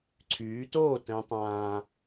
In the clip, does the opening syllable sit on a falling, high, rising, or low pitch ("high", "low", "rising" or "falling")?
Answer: rising